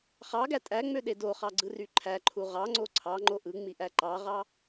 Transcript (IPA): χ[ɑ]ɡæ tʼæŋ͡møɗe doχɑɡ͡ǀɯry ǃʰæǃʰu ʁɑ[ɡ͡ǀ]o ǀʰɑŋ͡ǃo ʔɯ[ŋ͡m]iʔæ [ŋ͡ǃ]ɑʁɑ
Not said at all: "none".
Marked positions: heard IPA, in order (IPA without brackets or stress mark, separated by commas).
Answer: ɑ, ŋ͡ǀ, ŋ͡m, ǃ